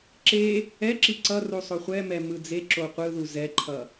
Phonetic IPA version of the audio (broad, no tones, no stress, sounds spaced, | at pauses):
ǁ e | ɛ ǁ i ǀ ʌ r u sˤ o χʷ ɛ m ɛ m ɯ d͡z e ǁ o qʷ ɯ ð u z ɛ ǃʰ ʌ